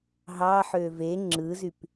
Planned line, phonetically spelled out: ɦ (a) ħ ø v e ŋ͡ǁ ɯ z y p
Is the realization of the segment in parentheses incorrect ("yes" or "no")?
yes